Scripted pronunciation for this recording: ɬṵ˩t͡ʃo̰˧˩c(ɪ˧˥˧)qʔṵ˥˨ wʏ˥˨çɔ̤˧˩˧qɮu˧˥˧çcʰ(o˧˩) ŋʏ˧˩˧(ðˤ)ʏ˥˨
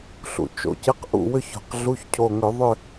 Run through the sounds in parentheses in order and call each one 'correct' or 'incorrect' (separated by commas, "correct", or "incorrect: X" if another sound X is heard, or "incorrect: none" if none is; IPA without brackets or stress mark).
correct, correct, correct